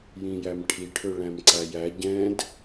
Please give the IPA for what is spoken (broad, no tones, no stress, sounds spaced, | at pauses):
j ĩ j æ m ʈʰ i ʈʰ ø ɭ æ̃ m ǀ æ j æ ɟ ɛ̃ d